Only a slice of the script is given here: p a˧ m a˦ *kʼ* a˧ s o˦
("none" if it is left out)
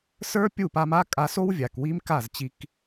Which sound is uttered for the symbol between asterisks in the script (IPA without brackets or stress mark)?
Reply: kʼ